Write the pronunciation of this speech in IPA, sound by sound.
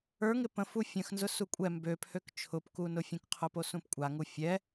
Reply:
ə˞ ŋ ɪ p ə̃ f u fʲ ə̃ x n z ʊ s u kʷʼ ɛ m b ø pʰ ø k t͡ʃʰ ʊ p k u n ʊ fʲ ũ k qʰ ʊ p o s ũ p kʷʼ a ŋ u fʲ ɛ

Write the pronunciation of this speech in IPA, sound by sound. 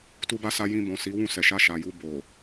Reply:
t u˧ b a˧ s a˧ j ĩ˧ b ɔ̃˨ s i˨˦ w ũ˦˨ s ɛ˨ ʃ a˧ ʃ a˨ j u˧ b o˨

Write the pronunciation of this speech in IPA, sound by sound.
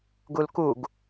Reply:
ɡ u l k u ɡ

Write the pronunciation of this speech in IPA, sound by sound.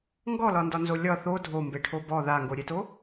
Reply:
ŋ ɡ ɔ l ɒ n d ɒ n z o lʲ ʌ θ o dʱ o m b e ʈʰ o b ɔ ð a ŋ ɡ o ɾʲ e t o

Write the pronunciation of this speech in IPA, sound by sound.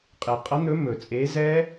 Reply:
qʼ e˩ qʼ ʌ˨˥ n̪ ɵ˨˥ m ɵ˩ t͡sʼ e˨˥ z ɛ˦˥

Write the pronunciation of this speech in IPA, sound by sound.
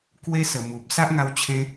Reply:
k w e˧ s ə˨˩ m u˨ p̚ s a˦ ʔ ŋ a˧ w t͡ɕʰ ẽ˧

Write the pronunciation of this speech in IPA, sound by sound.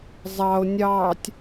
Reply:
zˤ ɑ o̯ nʲ ɑː tʲ

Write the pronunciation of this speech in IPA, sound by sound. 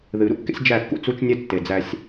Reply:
ð ɨ˨ ɾ ṵ˦ kː ḛ˦ sʲ d͡ʒ æ˦˨ kː ṵ˦ t͡s u˦ t͡ʃ nʲ ɛ˦ tː e˨ d͡z æ˦ sʲ

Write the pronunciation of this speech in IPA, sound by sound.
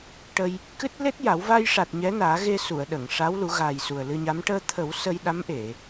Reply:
ʈ ə˧ j | k ɨ˦˥ t̚ l e˦˥ t̚ j a˨˩˦ w v a˧ j ʂ a˨˩ t̚ ɲ ɛ˧˥ n aː˨˩˦ ɣ e˧ s u˨˩˨ ə̯ ɗ ə˨˩˨ ŋ ʂ a˧˥ w l u˨˩˦ ɣ a˨˩ j s u˨˩ ə̯ l ɨ˧ ɲ a˧˥ m ʈ əː˧ t̪ʰ ə˨˩˦ w s əː˧ j ɗ a˧˥ m ʔ e˨˩˨

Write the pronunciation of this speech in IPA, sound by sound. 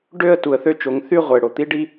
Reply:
ɖ ø˦˨ ə̯ t u˨ ə̯ θ ø˦ t͡ʃ o˨˦ ŋ θ y˦˨ ʁʷ e˨ ɽ o˨ t̪ i˦ ɖ i˦

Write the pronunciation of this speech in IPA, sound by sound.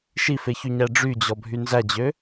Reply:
ʃ i f e ç y ɲ æ ɖ͡ʐ y d͡ʑ ɔ bʱ y n z æ d͡ʑ ø

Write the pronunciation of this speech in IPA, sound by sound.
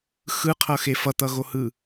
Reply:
x ɯ qʰ ʌ x e f ʌ t̪ ʌ ɣ o h ɯ

